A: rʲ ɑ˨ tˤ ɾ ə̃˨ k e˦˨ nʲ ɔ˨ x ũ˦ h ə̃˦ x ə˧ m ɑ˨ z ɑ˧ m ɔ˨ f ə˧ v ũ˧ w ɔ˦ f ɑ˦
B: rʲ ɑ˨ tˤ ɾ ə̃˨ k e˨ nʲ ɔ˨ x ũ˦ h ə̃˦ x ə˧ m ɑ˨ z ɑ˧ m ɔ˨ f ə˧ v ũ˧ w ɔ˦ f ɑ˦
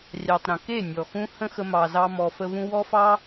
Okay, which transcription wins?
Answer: A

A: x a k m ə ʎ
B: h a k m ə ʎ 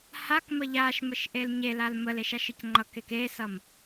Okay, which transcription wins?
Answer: B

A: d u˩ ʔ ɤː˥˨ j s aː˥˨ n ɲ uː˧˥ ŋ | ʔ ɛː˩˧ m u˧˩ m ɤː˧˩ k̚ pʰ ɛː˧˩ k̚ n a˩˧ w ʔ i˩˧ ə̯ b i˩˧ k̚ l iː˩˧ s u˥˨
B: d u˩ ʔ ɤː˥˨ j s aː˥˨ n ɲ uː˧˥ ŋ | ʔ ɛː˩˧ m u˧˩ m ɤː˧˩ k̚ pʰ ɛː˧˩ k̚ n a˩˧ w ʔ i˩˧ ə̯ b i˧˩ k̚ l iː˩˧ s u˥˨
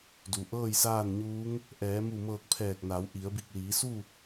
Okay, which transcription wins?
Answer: B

